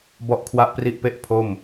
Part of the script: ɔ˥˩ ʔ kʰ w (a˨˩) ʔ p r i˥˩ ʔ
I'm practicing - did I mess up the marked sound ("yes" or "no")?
yes